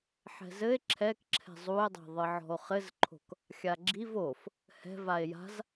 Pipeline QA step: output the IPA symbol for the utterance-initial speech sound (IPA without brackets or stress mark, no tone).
ħ